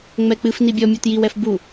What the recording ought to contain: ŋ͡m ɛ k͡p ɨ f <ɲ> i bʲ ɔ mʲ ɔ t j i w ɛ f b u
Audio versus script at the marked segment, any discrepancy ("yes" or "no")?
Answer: yes